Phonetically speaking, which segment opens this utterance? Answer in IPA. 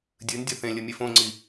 dʲ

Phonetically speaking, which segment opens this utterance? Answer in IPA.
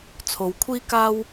t͡sʰ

